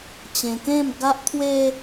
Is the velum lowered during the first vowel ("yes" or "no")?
yes